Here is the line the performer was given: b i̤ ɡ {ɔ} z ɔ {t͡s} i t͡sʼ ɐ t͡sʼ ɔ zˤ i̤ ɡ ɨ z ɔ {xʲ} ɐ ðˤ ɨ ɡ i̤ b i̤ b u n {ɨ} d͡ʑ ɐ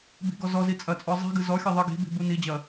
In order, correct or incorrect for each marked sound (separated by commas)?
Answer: correct, incorrect, correct, incorrect